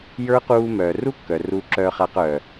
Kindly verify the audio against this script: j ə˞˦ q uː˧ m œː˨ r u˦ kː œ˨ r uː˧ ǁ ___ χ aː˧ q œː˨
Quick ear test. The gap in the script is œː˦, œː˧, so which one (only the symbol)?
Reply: œː˧